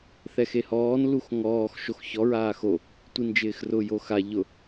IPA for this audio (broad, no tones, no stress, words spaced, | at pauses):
θɛxehɔːn luxŋɔːx ʃoxçɔ ɹaːxo | tʷind͡ʒɪːxrʊ joxa ʎʊ